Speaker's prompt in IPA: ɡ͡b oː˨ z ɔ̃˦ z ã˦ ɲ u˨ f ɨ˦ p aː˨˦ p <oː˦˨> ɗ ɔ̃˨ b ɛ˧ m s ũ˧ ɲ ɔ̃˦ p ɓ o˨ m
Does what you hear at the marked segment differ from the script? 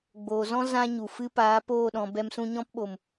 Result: no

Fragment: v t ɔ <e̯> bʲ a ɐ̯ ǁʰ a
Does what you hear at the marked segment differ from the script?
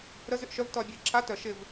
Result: yes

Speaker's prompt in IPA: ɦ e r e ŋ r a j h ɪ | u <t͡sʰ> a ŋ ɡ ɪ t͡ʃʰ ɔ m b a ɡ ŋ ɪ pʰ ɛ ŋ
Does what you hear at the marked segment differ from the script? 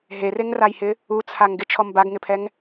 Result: no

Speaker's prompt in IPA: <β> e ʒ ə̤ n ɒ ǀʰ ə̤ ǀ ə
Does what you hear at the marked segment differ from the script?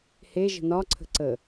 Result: yes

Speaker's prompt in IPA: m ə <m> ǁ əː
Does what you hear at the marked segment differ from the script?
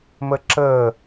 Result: yes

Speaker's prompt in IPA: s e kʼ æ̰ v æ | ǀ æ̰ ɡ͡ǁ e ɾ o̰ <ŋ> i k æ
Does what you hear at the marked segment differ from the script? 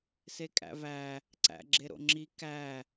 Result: yes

